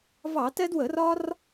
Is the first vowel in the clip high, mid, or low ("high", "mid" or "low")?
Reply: low